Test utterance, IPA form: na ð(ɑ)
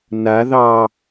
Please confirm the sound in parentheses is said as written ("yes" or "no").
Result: yes